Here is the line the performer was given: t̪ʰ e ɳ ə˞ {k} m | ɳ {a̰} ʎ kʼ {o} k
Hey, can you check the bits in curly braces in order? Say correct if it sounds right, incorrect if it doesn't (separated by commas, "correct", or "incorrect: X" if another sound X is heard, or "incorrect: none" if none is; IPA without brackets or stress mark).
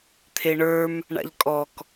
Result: incorrect: none, correct, incorrect: ɔ